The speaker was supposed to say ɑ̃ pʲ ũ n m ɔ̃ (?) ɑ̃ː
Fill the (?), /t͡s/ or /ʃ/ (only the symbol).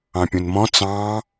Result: t͡s